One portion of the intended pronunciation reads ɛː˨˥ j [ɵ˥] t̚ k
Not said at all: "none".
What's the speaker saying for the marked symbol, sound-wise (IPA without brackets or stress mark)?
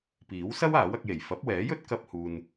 ɵ˥